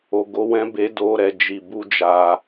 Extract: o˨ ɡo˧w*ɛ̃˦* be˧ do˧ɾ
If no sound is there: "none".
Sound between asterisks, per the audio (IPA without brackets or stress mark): ɛ̃˦